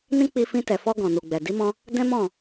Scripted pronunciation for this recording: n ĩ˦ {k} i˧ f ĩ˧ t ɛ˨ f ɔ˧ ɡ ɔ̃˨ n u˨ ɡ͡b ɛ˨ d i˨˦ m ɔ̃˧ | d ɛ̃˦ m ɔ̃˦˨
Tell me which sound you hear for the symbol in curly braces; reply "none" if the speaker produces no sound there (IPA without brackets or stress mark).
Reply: k͡p